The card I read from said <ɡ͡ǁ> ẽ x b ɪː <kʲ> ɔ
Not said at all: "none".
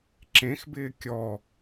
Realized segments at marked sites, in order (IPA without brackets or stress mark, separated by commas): ǁ, kʲ